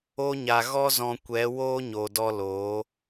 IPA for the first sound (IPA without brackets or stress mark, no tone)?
o